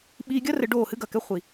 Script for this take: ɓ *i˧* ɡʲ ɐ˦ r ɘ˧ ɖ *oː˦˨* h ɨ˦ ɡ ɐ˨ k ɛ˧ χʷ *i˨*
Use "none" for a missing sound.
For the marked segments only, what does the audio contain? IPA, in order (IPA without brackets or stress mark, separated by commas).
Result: iː˧, oː˦˨, i˨